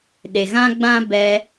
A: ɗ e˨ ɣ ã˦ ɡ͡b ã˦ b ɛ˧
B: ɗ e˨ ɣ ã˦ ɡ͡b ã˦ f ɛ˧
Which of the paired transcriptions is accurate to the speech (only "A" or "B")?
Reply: A